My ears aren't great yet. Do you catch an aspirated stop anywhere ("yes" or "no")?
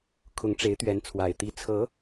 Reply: yes